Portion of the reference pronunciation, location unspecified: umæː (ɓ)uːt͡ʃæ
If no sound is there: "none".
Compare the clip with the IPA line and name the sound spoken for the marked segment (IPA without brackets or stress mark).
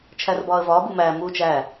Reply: m